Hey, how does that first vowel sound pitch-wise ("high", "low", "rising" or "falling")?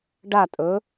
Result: falling